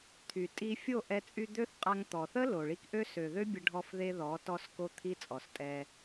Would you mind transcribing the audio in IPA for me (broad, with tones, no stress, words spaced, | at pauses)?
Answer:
t̪ʰy˨tʼi˧ fʲo˦˨ʔɛ˧ t͡sʼy˧d̪ø˦θqʼa˧ŋ t̪ɔ˨θə˦ lo˨ɭi˧kʔø˦ sø˨ðø˦bʲə˧ ɖʱɔ˧fðe˧ ðɔ˨˦ tɔ˧sko˧t̪ʰi˧ t͡sʼɔ˨stʼɛ˧